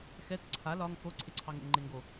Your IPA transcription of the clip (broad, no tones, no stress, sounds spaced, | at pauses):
x ɛ t ǀʰ a l ɒ ŋ x o ǀʰ e ǀʰ ɑ ŋ ḛ ŋ ŋ͡ǃ e ŋ ɡ o